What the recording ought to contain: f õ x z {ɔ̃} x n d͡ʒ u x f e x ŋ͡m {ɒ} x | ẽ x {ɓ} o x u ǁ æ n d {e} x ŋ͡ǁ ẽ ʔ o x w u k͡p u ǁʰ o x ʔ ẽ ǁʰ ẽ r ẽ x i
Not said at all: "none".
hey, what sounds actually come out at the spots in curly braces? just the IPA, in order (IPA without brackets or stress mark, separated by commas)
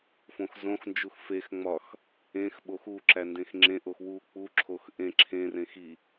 õ, ɒ, ɓ, ẽ